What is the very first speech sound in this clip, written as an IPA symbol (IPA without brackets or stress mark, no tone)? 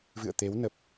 v